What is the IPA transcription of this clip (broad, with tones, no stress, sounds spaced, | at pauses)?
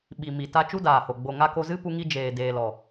ɓ i˨ m i˨ t a˧ t͡ʃ u˦ d aː˨ h o˨ ɡ͡b o˨ ŋ a˧ k o˧ z ɨ˦ p u˦ ŋ i˦ d͡ʒ eː˨ d eː˨ l ɔ˨